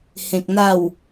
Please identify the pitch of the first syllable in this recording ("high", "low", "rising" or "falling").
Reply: low